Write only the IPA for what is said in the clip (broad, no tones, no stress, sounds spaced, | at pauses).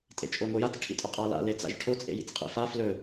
tʼ ḛ t͡ʃʼ o ŋʷ e j a t͡s ʈʰ ḭ tʼ ɵ qʼ a l a̰ l e t͡s a̰ ʒ ʈʰ o t͡sʼ ḛ j ḭ t͡s qʼ ḭ f a f l ɵ